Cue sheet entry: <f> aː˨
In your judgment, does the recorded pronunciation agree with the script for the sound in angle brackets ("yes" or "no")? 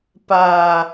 no